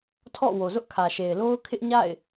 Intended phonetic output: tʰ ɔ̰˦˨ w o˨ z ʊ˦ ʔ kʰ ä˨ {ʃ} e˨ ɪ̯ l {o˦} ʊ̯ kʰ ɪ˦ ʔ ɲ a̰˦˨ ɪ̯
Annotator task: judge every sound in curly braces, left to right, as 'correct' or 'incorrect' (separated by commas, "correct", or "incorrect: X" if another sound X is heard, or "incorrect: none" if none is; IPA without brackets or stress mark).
correct, correct